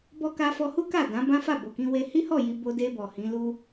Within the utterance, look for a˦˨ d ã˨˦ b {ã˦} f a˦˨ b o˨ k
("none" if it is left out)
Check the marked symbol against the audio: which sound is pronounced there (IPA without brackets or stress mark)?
ã˦